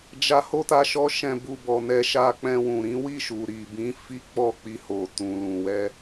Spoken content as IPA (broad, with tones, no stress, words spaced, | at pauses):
d͡ʒa˧ho˦ta˧ ʃɔ˦ʃɛ̃˧bu˧ bɔ˧nɛ˦ ʃa˧k͡pɛ̃˧wũ˨ɾĩ˨˦ wi˦˨ʃu˨ ɾi˨bĩ˨˦ fi˦ k͡pɔ˦˨k͡pi˧ho˨ tũ˨ lũ˨wɛ˧